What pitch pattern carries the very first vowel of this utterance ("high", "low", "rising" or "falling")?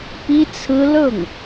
high